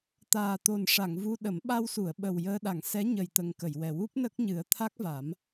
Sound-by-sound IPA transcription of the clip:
t̪ aː˨˩ t̪ o˨˩ n ʂ a˨˩˨ ŋ v u˧ ɗ ə˨˩˦ m ɓ a˧ w s u˨˩˨ ə̯ ɓ ə˨˩ w j əː˧ ɗ a˨˩˨ ŋ s ɛ˧˥ ɲ ə˨˩ j t̪ ə˨˩ ŋ k ə˨˩˨ j w ɛ˨˩ w u˦˥ p̚ n ə˦˥ k̚ ɲ ɨ˨˩˦ ə̯ t̪ʰ a˦˥ k̚ v a˨˩˦ m

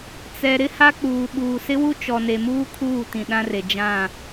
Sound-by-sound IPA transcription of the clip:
t͡s ɛ˨ ɾ ɪ˦ h a˦ k͡p uː˨ ɓ uː˨ s ɪ˦ w u˦ t͡ʃ ɔ˨ n e˨ m uː˦ kʰ uː˦˨ t ĩ˨ ɗ ã˦ r e˨ d͡ʒ ã˦˨

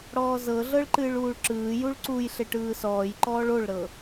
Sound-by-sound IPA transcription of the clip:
ɽ ɔː z ɤ ɮ ɤ ɭ ǃ ɨː ɭ uː ɭ ǁ ɯː j u ɭ ǀ u j ɬ e ʈ ɯː s ɔː j ǃ ɔː ɭ o ɭ ɾ ɤ

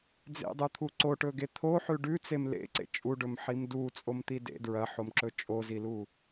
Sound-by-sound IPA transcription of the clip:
d͡z ḛ dˤ u t̪ʰ u ǀ o ʈ ɵ ɡ e t̪ʰ o ħ ʉ ɖ ʉ t͡s e m l ḛ ǀ ḛ t͡ʃʼ u ɖ ɵ m ħ i m d u t͡sʼ o m t̪ i d ḛ d ɹ ɐ ħ o m ǁ ɵ t͡ʃʼ o z i l u

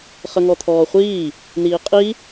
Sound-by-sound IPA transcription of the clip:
χ ə ŋ ɔ t̪ʰ ɔː χʷ iː | n̪ iː qʼ i

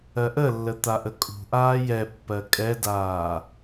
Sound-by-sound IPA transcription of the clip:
ɜ ʔ ə lː ə t̪ a ʔ ə kʼ ṳ ʔ aː j ɛ pː ɜ kʼ ɛ d aː

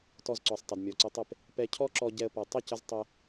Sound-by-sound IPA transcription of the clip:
t ɔ˧ z ǀ ɔ˨ sˤ tˤ ə˨ d mʲ ɔ˨ ǀ ɪ˧ tˤ ɪ˦˨ p | p ɛ˧ cʰ ɔ˦ ǁ ɔ˧ ɟ ɛ˦ ə̯ p ɔ˧ tˤ ə˦˨ c ə˧ z tˤ ɪ˧

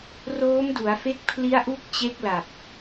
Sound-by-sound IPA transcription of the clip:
r oː˦˥ m d u˩˦ a̯ f e˦˥ k̚ pʰ l i˦˥ a̯ ʔ u˦˥ k̚ t͡ɕ e˦˥ k̚ l a˨˩ p̚

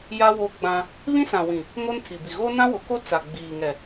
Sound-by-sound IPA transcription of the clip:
j a˦ w o˦ ɡ͡b ã˦ | β ĩ˦ s ã˨ w ĩ˨ | ŋ o˦ n tʰ i˨ b i˨ ɣ o˦ n ã˦ w ʊ˨˦ k o˦ t͡s a˨ ɡ͡b iː˨ ŋ ɛ˨

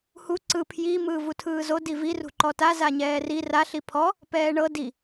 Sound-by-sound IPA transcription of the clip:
h u ǀ ɯ pʰ j i m ɯː v u tʰ ɯː z o d i v i r ṳ ǃ ɔ t a z a ɲ ɛː r i r a ɬ i pʰ ɔ | p ɛː ɳ ɤ d i

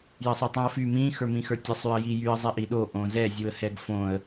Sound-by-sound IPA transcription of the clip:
j ə sˤ o tˤ ĩ ə̯ f y m ĩ x ə˞ m ĩ x ə˞ tʲ ə sˤ y ə̯ j i j y ə̯ zˤ i ʔ i ɗ o ʔ õ z ɛ zʲ u ə̯ h ɛ ɡ f õ ə̯

